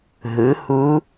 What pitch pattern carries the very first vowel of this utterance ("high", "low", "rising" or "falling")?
rising